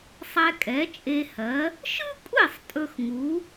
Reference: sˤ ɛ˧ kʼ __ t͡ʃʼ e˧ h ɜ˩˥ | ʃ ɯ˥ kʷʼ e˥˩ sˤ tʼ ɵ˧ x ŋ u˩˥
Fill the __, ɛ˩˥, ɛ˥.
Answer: ɛ˩˥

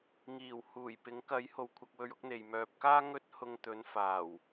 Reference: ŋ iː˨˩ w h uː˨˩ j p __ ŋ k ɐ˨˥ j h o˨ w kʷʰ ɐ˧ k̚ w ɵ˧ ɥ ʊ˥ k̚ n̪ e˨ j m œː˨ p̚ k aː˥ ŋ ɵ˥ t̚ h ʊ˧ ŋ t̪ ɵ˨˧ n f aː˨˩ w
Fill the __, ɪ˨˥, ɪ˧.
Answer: ɪ˨˥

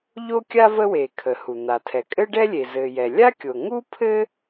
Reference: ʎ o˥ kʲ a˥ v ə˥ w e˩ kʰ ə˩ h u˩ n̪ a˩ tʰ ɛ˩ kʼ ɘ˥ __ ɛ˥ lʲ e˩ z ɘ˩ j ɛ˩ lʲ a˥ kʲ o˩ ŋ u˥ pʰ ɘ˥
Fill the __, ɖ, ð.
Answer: ɖ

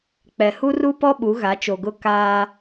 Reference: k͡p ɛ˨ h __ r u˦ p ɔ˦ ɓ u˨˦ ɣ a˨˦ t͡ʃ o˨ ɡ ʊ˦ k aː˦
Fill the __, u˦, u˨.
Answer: u˦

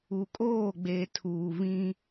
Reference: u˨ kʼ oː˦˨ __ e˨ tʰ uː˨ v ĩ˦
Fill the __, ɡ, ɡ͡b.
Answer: ɡ͡b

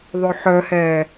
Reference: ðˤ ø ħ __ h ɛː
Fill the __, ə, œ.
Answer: œ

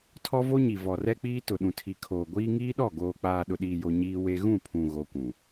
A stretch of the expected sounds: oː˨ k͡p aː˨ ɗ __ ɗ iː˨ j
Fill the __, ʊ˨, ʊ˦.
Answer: ʊ˨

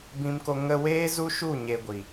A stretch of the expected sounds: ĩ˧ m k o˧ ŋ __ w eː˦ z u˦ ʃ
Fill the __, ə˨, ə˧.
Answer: ə˧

